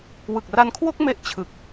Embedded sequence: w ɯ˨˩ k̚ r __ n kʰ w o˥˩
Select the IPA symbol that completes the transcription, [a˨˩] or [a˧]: a˧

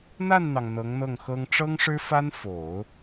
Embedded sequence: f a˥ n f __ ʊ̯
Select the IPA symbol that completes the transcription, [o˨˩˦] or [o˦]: o˨˩˦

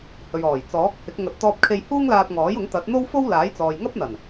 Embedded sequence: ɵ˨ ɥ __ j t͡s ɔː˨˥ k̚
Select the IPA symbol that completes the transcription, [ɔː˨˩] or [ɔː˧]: ɔː˨˩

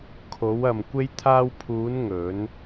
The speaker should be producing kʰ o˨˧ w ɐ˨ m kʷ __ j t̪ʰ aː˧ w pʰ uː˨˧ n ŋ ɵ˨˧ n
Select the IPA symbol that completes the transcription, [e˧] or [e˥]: e˧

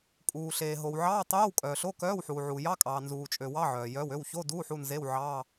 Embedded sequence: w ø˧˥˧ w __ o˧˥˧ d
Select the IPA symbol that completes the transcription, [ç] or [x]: ç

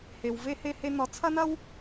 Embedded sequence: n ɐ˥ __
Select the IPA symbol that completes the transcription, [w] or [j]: w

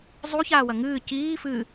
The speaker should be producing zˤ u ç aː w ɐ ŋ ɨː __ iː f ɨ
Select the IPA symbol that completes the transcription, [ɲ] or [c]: c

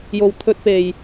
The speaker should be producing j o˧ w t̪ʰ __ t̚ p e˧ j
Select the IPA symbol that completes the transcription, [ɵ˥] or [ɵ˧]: ɵ˥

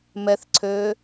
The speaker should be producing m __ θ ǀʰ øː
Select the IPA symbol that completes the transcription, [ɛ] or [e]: ɛ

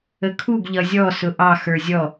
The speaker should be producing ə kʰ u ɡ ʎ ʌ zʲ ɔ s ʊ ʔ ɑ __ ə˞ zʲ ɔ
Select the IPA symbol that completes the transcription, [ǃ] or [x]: x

